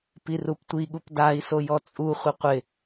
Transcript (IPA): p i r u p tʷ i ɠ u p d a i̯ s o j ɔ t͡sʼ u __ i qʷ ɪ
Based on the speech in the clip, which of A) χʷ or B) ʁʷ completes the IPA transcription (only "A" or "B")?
A